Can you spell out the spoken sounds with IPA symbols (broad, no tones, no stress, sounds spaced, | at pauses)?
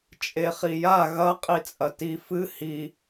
t͡ʃʼ e χ i j a ɣ ɐ qʼ i t͡sʼ ɐ t i f ɨ h i